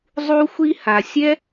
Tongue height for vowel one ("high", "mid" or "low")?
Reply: high